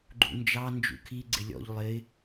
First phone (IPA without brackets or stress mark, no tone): ɡ͡ǃ